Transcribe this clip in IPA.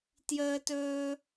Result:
t j əː˥ t ɵː˥

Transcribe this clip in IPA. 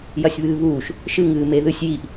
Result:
j ɐ sʲ β ɨː β uː ʃ | ʃ ɨ ŋ ɨː m e ð ɨ sʲ j i ʔ

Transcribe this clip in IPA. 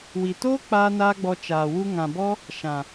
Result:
w i˨ t oː˦ k͡p aː˦ n aː˦ ɡ͡b ɔ˧ t͡ʃ aː˨ w u˦ ŋ ã˨ b ɔ˦ | ʃ ã˨

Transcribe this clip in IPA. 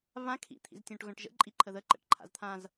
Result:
β ã kʰ ḭ t̪ʰ ḭ z tʲ õ ʈ ɣ œ̃ ʈ ʒ ə̰ ǃʼ i ǃʰ ə ð ə ǃ ə̰ ʈ ǃʰ a̰ z t̪ʰ ã z

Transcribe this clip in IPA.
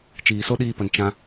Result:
t͡ʃ iː˨ s o˦ ɗ iː˧ p ə˨ n t͡ʃ ã˦

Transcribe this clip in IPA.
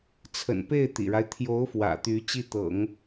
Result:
t͡sʰ ə̰˨˩ n p e˥˩ ɪ̯ t̪ ḭ˨˩ ɻ a˦ ɪ̯ t̪ʰ j o˧˥ ʊ̯ f w ä̰˨˩ t̪ y˧˥ t͡ɕ i˥˩ t̪ ɤ̰˨˩˦ ŋ

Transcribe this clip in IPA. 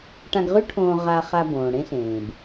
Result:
ʈ ã˧ ɡ ʁ ʉ˥ ʈʰ õː˧ ʁ a˧ χ a˧ b õː˩ ɽ ẽ˥ ɬ ẽː˩ b

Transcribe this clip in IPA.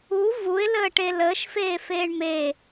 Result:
u v u ɪ̯ l əː ʈ e l əː ʃ f eː f eː ɳ m e

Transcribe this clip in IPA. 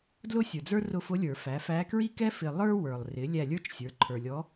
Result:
d l ʊ˥ sʲ ə˞˨ d͡z ə˞˥ r ʊ˦˨ f ʊ˧˥ lʲ ə˞˨˩˦ f æ˩˥ f æ˧˥ k ɹ i˥ k ɛ˥ f ɪ˨ lˠ ə˞˥ w ə˞˨ lˠ r ɪ˩˥ lʲ æ˦˨ lʲ ə˞˥ t͡ʃ sʲ ə˞˩˥ ǃʰ ə˞˨ lʲ ɔ˧˥

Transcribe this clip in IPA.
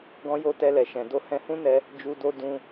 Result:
ɡ ɔ̃˧ j o˧ t ɛ˧ l ɛ˨ ʃ ɛ̃˨ d o˧ h ɛ̃˧ h ũ˦ n ɛ˧ | d͡ʒ u˧ d o˦ d ũ˧

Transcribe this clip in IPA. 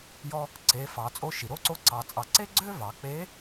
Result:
j ɔ˧ | ǀ e˩˧ f ɑ˩˧ t͡sʼ o˧˥ ʃ i˩ ɾ o˥ ǀ o˥ ǀ ɑ˧ t͡sʼ ɑ˧ ǀ e˥ ɡ͡ǀ ø˥ v ɑ˩˧ k͡p e˧˥

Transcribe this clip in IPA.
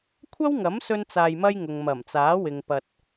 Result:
kʷʰ ɐ˥ w ŋ ɐ˨˥ m s ɵ˥ n t͡s aː˧ j m ɐ˥ j ŋ ʊ˨ ŋ m ɐ˨˩ m t͡s aː˨˥ w ɪ˨ ŋ p ɐ˧ t̚

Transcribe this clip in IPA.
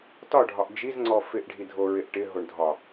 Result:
t ɒ ɖʱ ɒ ʔ d͡ʒ i z ŋ͡ǀ ɔ f ɪ ʔ ɖʱ i dʱ o ɹ ɪ ʔ ʈ ɪ ɦ o ɳ dʱ ɒ

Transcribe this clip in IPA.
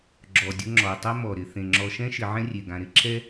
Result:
ɡ͡ǁ ɔ˩ dʲ ʊ˦ ŋ͡ǁ ɔ˩ tˤ ɛ˦ m ɔ˩ ɾ ɪ˩ θ ẽ˩ ŋ͡ǁ ɔ˨ ʃ ɛ̃˥ ʃ ɪ˨ ʕ ɛ̃˥ rʲ e˩ ɡ ã˨ ɾ ɪ˦ ǁʰ ɛ˥

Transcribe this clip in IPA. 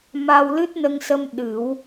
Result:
m a˧ w l ɨ˦˥ t̚ n ə˧ ŋ s ə˧ m ɗ ɨ˨˩˦ w

